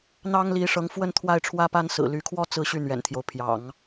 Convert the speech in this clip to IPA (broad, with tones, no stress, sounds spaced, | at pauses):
n̪ ɑ˥ ŋ l i˧˥ ʂ ɤ˧˥ ŋ f w ə˥˧ n t̪ʰ w a˥˩ ɪ̯ ʈ͡ʂʰ w ä˥ p a˥ n s ɹ̩˨˩ l y˧˥ kʰ w ɔ˥ t͡s ɹ̩˥˧ ɕ y˥˩ n̪ ɥ ɛ̰˨˩ n t̪ʰ j o˦ ʊ̯ pʰ j ɑ̰˨˩˦ ŋ